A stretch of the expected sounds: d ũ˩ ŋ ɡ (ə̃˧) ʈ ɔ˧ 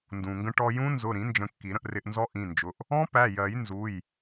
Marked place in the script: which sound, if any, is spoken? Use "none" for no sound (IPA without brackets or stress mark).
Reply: ə̃˧